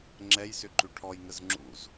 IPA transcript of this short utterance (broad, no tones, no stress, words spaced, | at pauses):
ŋ͡ǁɛjsʏ ǃʉʈʰɔjŋəz ŋ͡ǁṵz